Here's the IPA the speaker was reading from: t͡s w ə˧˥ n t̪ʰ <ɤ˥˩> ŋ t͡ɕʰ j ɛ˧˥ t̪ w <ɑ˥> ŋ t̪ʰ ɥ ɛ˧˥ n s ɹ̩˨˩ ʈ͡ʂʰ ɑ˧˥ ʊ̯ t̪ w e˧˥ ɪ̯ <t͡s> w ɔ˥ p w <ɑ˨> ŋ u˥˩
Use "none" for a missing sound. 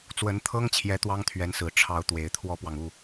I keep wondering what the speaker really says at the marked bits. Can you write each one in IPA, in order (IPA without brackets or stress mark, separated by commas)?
ɤ˥, ɑ˥, t̪ʰ, ɑ˨